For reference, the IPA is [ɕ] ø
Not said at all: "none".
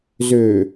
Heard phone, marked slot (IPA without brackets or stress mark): z